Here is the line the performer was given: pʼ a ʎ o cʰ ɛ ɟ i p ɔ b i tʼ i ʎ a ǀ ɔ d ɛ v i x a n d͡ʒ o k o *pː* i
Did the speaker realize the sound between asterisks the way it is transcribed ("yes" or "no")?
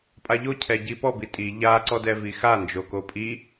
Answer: no